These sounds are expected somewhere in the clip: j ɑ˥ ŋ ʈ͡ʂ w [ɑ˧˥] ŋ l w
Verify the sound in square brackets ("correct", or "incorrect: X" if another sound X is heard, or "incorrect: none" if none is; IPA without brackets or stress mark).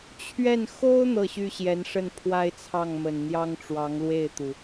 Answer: correct